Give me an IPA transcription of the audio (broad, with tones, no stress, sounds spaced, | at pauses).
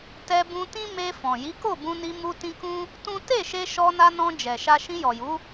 t ɛ˧ b ũ˧ t ĩ˦ m e˧ f ɔ̃˨ j i˨˦ k o˦˨ b ũ˧ n i˧ m u˧ t ĩ˧ k ũ˦ | t ũ˦ t e˦˨ ʃ e˧ ʃ ɔ˧ n a˧ n ɔ̃˧ d͡ʒ ɛ˨ ʃ a˧ ʃ ĩ˧ j ɔ˨ j u˨˦